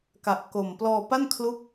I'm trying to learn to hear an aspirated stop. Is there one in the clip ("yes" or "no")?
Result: yes